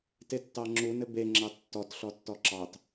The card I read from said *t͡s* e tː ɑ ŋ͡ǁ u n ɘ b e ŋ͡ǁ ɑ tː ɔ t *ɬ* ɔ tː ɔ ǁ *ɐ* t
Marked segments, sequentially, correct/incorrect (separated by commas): incorrect, correct, incorrect